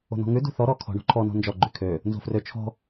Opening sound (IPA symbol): o̤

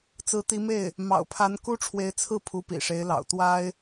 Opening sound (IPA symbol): t͡s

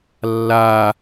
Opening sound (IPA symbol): lː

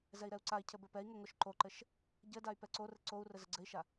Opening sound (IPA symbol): z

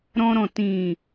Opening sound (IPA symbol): ɾ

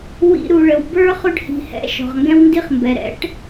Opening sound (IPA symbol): w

